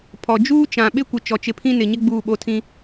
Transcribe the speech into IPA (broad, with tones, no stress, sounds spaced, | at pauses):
pʰ ɔ˨ d͡ʒ uː˦ t͡ʃ ã˨ ɓ ɪ˦ kʷ ɪ˨ t͡ʃ ɔ˨ t͡ʃ ɪ˨ pʰ ĩ˦ n ɪ˨ ɲ ɪ˦ ɡ͡b uː˦˨ ɓ o˦ tʰ ĩ˦